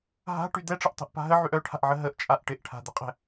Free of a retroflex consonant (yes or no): no